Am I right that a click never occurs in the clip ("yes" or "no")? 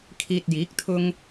yes